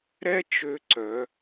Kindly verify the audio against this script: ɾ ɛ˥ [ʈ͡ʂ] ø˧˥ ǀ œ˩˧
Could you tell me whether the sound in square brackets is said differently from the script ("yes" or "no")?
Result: yes